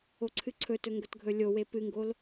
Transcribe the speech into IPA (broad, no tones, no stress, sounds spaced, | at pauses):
o ǀʰ ɨ ǀʰ ɵ t ɵ ŋ ɡ ɵ t ɡʱ ɵ lʲ o w e p ɨ ŋ ɡ o l